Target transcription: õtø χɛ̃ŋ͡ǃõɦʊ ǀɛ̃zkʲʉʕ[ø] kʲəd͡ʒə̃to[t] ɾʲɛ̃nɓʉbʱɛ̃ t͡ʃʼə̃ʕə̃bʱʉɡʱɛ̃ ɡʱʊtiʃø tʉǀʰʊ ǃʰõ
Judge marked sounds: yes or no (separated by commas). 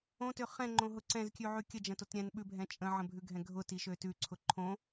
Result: no, yes